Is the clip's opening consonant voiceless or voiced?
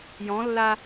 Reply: voiced